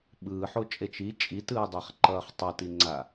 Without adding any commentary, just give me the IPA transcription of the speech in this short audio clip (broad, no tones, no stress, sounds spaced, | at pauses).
ɓ ɯː ħ o t͡ʃʼ e t͡ʃ i t͡ʃʼ i t ɯː dˤ a χ ǃ ʌː χ tˤ ʌ t i ŋ͡ǀ a